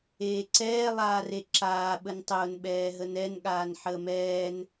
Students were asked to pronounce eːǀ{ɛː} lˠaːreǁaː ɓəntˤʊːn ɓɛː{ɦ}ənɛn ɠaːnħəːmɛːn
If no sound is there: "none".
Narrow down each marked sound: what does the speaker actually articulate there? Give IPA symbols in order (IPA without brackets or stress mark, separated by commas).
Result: ɛː, ɦ